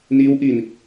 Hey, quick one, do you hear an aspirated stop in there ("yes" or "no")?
no